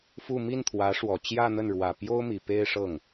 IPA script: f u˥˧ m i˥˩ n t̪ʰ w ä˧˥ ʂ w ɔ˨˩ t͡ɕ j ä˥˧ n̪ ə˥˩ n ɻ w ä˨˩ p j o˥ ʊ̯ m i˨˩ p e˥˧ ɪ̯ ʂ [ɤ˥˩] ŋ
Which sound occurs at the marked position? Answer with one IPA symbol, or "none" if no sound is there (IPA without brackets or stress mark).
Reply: ɤ˥˩